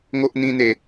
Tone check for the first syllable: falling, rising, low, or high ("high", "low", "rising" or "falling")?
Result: high